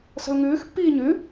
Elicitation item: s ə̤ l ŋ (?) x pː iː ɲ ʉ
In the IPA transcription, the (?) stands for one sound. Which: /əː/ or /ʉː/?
ʉː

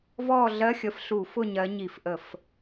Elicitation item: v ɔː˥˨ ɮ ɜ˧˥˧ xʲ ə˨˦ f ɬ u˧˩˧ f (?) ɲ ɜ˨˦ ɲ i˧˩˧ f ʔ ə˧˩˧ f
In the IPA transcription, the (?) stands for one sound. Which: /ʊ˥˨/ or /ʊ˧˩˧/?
ʊ˥˨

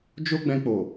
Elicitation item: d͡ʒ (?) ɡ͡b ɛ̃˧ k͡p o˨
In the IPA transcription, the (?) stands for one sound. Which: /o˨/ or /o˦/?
o˦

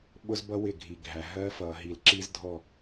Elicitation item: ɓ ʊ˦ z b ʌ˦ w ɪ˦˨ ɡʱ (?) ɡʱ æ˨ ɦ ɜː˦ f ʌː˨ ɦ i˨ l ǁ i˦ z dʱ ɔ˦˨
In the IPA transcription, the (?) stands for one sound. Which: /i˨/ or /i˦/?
i˨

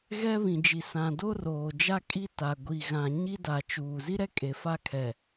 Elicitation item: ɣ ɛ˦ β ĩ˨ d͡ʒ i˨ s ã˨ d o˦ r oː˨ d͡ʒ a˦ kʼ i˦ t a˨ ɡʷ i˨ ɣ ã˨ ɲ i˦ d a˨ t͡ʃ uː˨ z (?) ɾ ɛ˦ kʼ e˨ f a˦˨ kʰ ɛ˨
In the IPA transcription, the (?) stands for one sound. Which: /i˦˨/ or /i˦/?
i˦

